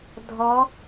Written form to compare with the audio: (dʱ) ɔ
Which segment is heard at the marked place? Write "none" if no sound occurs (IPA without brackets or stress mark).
dʱ